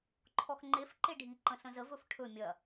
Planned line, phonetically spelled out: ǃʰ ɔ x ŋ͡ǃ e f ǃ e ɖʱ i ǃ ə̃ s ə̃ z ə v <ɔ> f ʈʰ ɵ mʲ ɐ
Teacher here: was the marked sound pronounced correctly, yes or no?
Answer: no